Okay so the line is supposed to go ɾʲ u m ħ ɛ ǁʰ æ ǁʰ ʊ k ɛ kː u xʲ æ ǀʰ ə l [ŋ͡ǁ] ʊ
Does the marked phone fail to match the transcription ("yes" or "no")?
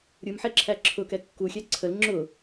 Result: no